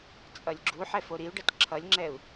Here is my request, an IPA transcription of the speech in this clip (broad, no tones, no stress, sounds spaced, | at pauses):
t͡sʼ ʌ lʲ ɡ͡ǁ u ħ ɛ f o ɾ i u̯ ɖ ʌ t ǁʰ ʌ lʲ ŋ͡ǁ ɛ u̯